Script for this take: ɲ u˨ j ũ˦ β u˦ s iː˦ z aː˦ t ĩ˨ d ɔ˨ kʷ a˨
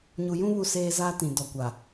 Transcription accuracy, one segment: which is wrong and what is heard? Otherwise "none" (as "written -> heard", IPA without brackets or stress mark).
iː˦ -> eː˦